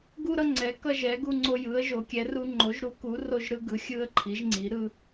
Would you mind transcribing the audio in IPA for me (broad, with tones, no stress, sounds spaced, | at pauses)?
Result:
ɡ u˦ ɾ ʌ˦ ŋ͡ǀ ɛ˩˥ k ʌ˦ ʒ ɛ˩˥ ɡ u˦ ŋ͡ǀ o˦ j ɯ˩˥ ə̯ ʒ o˩˥ kʲ ɛ˩˥ r u˦ ŋ͡ǃ o˩˥ ʒ ɾ u˩˥ k u˩˥ r o˦ ʒ ɾ ɯ˦ ɡ ɯ˩˥ xʲ ɯ˦ ə̯ ǃʰ i˩˥ ʒ ŋ͡ǀ i˩˥ ɾ ɯ˦